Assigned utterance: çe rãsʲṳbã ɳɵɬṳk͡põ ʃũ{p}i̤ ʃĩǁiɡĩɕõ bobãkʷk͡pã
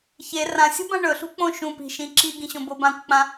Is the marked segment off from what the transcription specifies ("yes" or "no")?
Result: no